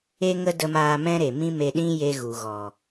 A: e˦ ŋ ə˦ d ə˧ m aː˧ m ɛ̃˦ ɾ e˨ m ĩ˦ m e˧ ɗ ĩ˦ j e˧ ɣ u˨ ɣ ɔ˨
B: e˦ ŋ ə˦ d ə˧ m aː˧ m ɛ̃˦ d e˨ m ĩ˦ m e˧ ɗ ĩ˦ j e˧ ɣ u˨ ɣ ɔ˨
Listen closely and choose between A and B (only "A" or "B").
A